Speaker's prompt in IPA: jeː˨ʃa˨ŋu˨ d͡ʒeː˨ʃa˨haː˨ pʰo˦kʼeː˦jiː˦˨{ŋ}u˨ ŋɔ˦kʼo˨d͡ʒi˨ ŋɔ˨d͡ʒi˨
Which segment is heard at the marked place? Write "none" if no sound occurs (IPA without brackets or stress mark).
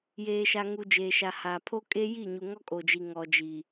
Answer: ɲ